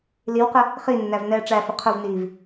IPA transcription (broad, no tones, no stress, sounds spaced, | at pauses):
l i w q ə | χ i nː æ v n ɛː ʈ͡ʂ æ f ə qʰ ʊ v n iː v